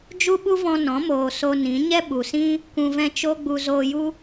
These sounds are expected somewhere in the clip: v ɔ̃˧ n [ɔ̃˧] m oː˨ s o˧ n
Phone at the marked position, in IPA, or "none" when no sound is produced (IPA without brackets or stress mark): ɔ̃˨˦